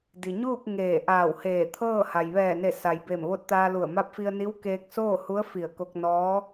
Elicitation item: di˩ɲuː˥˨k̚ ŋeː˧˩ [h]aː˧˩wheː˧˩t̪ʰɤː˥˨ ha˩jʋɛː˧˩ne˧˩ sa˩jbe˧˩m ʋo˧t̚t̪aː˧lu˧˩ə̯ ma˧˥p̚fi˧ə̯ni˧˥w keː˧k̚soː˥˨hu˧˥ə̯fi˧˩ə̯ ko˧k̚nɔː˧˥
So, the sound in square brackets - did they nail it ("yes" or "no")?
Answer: no